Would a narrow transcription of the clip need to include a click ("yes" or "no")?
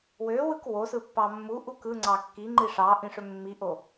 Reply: yes